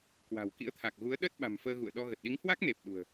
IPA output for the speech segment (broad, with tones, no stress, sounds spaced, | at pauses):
k w a̤˨˩ w k ḭ˧˥ ə̯ t̪ʰ a˨˩ k̚ ɣ u˨˦ ə̯ ɗ ə˦˥ t̚ ɓ a̤˨˩ m f əː˧ ɣ ṵ˧˨ ə̯ ɗ ɔ˧ ɣ ə˨˩ t̚ ɗ i˨˦ ŋ h w a˦˥ k̚ n e˨˩ p̚ ɗ ṳ˨˩ ə̯